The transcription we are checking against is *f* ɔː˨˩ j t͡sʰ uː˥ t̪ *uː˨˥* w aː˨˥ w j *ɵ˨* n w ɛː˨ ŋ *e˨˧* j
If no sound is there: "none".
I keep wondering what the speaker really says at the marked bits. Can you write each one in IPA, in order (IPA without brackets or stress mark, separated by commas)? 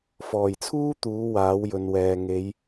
f, uː˨˥, ɵ˨˧, e˨˧